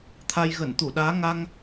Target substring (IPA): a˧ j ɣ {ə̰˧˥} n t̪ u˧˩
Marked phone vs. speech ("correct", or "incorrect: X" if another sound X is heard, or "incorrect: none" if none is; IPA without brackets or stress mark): incorrect: ə˧˩